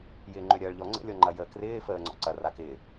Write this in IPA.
j ɪː ŋ͡ǃ ø ɾʲ ɐː ɭ ʎ ɔ ŋ͡ǀ ə̰ lʲ ɔ ŋ͡ǃ ɐ j əː k r ɪː f əː ŋ͡ǀ ɔ̰ ǀ ɐ r a k ɪː

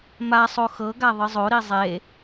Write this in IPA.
m a sˤ o x ɤ ɡ a ðˤ ɯ zˤ o ɾ i zˤ e

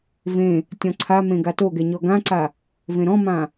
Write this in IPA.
v ẽ | tʲ ɔ̃ ǀʰ a m ẽ ɡ a t o ɡ ɛ ɲ ɔ ɡ ã ǀ a | v ẽ ɾ ɔ̃ m ã

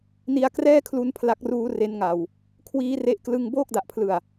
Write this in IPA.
n i˧ a̯ k r ɛː˥˩ kʰ l u˧ n pʰ l a˦˥ k̚ r uː˦˥ r e˦˥ n ŋ a˨˩ w | kʰ w iː˦˥ r e˥˩ ʔ k l ɯ˥˩ ŋ b oː˥˩ k̚ d a˨˩ ʔ pʰ l ɯ˨˩ a̯

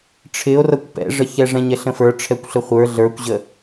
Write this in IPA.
ʈ͡ʂʰ ɪ o̯ r ʌ kʷ p ɛ̰ ʐ ə ç ɛ ʐ ɛ̃ ɲ ɛ ɬ ə̃ f ə˞ ʈ͡ʂʰ ɛ kʷ ɬ ə χʷ ə˞ ɮ ə˞ kʷ ʑ ə

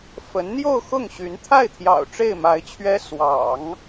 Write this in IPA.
f ə˧˥ n n̪ j o˥˧ ʊ̯ x ʊ˥˩ ŋ ɕ y˧˥ n t̪ʰ a˥˩ ɪ̯ t̪ʰ j ɑ̰˨˩ ʊ̯ ʈ͡ʂ e˥˩ ɪ̯ m a˧˥ ɪ̯ t͡ɕʰ ɥ ɛ˥ s w ɑ̰˨˩˦ ŋ

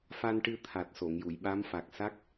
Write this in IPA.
f a˧ n ʈ ɨ˧ t̪ʰ a˨˩ t̚ s o˨˩˨ ŋ j u˨˩˨ j ɓ a˧˥ m f a˨˩ k̚ s a˦˥ k̚

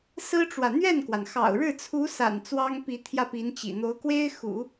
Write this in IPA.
s ɹ̩˥ ʈ͡ʂ w ä˨ n̪ ɥ ɛ˥˩ n k w a˩ n x ɑ̰˨˩ ʊ̯ ɻ ɻ̩˥˩ t͡sʰ u˧˥ s a̰˨˩ n t͡s w ɑ˥ ŋ p i˧˥ t̪ʰ j ä˥˩ p i˧˥ n t͡ɕ ḭ˨˩ n̪ o˧˥ ʊ̯ k w e˥ ɪ̯ x ṵ˨˩˦

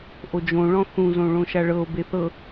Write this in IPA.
ʔ o d͡ʒ õ ɭ ɔ̃ θ ũ z õ ɭ õ ʃ a ɭ ɤ o̯ b e θ ɤ

